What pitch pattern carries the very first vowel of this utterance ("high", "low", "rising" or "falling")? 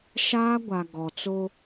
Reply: high